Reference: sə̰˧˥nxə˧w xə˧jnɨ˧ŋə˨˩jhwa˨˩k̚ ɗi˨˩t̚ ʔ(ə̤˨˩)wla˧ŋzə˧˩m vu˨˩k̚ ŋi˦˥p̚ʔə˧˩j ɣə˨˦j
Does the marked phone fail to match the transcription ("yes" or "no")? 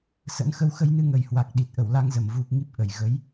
yes